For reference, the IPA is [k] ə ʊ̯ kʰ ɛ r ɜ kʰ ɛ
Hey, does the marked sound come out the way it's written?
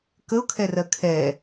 yes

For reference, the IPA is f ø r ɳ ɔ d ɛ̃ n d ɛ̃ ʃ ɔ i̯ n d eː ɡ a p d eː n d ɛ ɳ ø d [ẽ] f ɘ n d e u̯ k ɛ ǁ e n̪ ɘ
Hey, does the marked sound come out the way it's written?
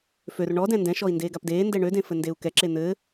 yes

